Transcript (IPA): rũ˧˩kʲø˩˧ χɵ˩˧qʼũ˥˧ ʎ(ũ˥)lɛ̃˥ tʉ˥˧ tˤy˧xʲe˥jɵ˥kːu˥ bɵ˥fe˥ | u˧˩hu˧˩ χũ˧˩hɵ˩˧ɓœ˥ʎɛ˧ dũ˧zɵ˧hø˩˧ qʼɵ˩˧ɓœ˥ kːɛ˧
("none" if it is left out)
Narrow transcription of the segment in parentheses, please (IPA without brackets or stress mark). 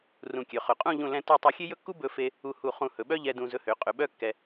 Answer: ũ˥˧